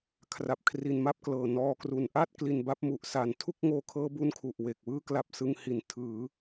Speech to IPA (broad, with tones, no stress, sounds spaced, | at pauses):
kʰ r a˨˩ p̚ kʰ r i˩˦ n m a˥˩ p̚ k l ɤː˨˩ n ɔː˧ k r u˨˩ n ʔ a˥˩ t̚ k l i˩˦ n b a˦˥ p̚ m u˨˩ ʔ s a˨˩ n tʰ u˥˩ k̚ ŋ oː˧ kʰ ɤː˦˥ b u˦˥ n kʰ u˨˩ ʔ w e˨˩ k̚ w ɯː˥˩ k l a˦˥ p̚ s ɯ˧ ŋ h i˨˩ n tʰ ɯː˩˦